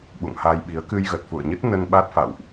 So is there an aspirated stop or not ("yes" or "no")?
no